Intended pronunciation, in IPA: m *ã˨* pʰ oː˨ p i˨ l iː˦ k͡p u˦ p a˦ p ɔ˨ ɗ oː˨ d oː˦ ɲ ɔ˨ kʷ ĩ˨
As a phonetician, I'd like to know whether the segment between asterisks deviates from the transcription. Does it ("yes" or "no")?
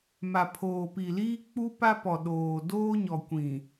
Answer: yes